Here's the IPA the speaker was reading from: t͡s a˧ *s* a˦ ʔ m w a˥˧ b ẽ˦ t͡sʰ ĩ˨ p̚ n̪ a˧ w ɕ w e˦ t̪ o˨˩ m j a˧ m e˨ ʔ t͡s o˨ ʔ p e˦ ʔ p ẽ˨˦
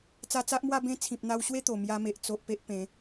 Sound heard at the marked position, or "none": t͡s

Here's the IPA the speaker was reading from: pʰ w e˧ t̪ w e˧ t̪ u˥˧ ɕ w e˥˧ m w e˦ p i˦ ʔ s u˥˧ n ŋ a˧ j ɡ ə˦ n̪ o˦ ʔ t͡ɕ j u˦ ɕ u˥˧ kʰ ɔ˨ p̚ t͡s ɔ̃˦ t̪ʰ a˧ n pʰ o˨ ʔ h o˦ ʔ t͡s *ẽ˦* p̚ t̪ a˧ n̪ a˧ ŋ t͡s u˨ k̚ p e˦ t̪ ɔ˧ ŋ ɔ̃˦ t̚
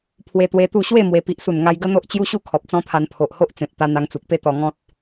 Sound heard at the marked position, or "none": ẽ˨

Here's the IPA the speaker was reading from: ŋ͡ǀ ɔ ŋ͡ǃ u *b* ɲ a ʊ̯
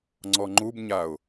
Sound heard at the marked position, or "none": b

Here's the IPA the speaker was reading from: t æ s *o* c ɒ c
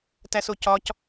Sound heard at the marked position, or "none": o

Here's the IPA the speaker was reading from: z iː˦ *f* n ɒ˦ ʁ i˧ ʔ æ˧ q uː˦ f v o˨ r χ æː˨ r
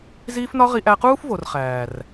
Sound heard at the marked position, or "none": f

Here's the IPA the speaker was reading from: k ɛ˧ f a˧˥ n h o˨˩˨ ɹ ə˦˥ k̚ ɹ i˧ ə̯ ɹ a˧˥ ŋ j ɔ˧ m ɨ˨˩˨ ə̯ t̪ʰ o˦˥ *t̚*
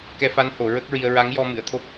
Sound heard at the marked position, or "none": p̚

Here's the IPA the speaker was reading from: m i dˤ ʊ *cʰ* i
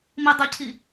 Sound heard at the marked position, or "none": cʰ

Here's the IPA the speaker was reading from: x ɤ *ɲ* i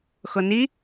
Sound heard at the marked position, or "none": n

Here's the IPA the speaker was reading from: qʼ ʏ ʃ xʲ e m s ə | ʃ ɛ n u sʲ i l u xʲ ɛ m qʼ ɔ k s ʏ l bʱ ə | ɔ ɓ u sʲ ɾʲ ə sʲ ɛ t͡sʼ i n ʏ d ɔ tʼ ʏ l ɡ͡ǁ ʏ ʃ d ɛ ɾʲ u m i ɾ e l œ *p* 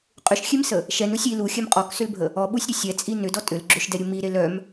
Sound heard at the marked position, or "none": m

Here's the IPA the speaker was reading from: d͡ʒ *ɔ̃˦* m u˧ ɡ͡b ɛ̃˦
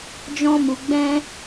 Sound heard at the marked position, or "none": ɔ̃˦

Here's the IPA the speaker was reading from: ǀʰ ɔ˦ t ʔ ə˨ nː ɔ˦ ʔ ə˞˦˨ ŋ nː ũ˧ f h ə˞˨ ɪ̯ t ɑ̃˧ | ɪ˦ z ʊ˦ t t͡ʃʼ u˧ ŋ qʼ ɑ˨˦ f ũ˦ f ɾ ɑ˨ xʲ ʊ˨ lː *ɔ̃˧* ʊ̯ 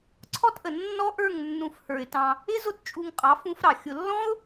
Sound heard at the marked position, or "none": ɔ̃˦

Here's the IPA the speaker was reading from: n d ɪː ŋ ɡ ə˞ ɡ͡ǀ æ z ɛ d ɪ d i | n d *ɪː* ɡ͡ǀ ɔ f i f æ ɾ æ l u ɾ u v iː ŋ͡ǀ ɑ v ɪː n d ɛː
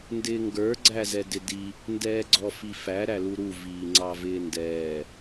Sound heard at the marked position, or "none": ɛː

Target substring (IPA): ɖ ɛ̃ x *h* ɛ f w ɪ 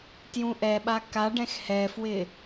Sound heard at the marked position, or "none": h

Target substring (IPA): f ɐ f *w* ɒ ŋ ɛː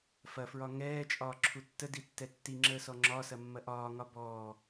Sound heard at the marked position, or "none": ɹ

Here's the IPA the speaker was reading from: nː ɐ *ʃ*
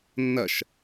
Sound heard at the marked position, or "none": ʃ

